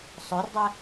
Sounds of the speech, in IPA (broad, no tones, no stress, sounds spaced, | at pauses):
sˤ œ r dˤ ɛ